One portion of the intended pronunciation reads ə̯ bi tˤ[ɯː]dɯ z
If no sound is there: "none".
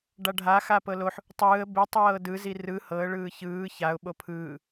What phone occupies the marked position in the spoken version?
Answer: ɤː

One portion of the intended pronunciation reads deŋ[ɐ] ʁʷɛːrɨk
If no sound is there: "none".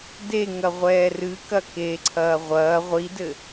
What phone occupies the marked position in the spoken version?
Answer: ɐ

